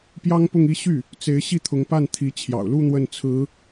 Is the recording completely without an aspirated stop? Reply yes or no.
no